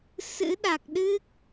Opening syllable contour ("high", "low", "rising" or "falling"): rising